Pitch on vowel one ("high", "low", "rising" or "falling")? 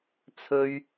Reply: high